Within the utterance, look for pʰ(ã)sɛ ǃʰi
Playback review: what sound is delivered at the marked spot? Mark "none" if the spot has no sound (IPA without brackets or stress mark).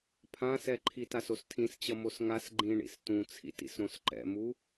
ã